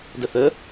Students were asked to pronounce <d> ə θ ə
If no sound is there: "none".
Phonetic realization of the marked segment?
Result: d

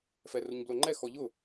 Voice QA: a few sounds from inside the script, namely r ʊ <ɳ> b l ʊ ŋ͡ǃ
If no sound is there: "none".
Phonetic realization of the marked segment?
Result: ɲ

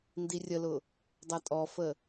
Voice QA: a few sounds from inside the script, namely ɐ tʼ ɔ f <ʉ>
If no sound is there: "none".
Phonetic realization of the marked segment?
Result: ə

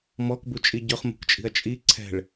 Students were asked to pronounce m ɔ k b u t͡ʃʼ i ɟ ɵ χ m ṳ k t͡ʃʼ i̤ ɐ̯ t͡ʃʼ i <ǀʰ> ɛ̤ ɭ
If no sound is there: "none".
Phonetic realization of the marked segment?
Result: ǀʰ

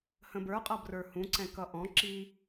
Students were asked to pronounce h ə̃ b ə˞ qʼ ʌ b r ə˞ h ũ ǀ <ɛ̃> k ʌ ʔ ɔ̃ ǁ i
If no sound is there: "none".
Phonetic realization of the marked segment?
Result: ɛ̃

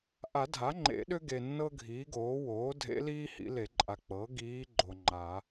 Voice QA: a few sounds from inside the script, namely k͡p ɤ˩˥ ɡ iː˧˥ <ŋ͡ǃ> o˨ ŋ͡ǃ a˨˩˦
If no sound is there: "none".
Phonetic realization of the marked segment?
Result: ɡ͡ǃ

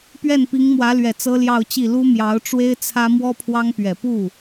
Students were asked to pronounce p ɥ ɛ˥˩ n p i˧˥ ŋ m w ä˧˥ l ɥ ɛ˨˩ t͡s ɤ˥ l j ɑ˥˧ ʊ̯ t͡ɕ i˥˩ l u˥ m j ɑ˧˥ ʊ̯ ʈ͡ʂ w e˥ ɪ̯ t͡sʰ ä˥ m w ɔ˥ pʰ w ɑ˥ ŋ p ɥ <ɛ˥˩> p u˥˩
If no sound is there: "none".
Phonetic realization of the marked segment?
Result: ɛ˨˩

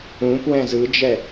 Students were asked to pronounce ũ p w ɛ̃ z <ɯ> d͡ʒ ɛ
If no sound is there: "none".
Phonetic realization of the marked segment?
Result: ɯ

